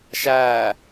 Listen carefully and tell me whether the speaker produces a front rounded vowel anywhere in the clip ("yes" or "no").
no